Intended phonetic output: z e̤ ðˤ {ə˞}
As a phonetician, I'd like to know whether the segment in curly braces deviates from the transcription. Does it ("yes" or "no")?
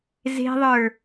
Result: no